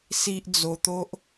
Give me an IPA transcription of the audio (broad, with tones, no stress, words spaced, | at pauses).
si˦ʔ d͡zo˧ t̪o˦ʔ